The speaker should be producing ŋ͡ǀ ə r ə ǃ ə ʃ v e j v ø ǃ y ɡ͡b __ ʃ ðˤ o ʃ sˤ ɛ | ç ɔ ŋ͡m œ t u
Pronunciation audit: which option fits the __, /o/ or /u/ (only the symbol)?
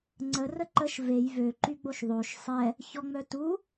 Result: o